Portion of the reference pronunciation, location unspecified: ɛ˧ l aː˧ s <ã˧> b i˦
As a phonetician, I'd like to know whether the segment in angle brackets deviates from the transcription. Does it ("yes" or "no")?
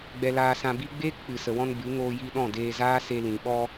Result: no